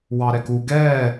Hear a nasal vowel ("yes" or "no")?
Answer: no